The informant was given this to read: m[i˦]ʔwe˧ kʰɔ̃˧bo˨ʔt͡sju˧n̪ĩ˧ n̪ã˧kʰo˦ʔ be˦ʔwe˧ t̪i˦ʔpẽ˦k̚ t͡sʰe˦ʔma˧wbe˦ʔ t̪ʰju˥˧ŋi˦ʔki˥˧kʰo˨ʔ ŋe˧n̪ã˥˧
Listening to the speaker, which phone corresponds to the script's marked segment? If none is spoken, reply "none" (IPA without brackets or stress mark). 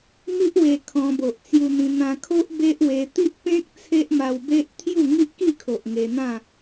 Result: i˦